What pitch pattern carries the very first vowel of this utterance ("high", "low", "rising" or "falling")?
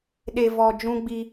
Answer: low